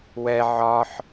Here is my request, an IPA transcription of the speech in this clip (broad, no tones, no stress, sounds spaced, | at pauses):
w ɛ ʕ ɒ ħ